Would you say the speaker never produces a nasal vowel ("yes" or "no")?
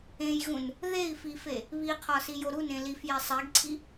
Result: no